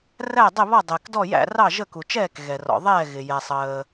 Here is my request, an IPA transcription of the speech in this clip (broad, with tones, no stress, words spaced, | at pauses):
ræ˥˩dˤɪ˥˩βɔ˥˩ dˤɪː˩kdɔ˥˩jæ̰˥˩ rɑ˥˩ʒə˥˩ ku˩t͡ʃɛː˥˩k ɣɛ˩rɔ̰˩ðˤɛː˥˩ɣɪ˩ jɛ˩sˤəː˩